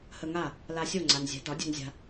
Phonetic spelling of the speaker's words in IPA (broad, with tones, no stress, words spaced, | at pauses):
hə˧ŋa˥˩ | la˧sʲo˥˩ŋ͡ǀa˩n zʲɛ̤˩˥dɒ˩˥ dʲṳ˧nzʲa̤˧